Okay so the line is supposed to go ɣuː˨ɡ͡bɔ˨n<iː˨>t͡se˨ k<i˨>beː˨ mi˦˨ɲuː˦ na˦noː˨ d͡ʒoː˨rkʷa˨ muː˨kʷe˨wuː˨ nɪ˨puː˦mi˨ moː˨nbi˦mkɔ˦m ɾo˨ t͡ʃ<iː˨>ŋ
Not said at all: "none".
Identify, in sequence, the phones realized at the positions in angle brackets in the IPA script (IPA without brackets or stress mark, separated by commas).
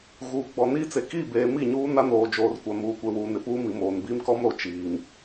iː˦, i˦˨, iː˨